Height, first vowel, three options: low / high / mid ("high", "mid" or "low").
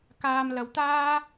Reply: low